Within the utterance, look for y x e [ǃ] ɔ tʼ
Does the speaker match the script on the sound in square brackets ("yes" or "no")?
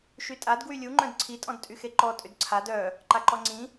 yes